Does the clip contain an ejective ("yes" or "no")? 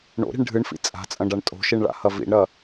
yes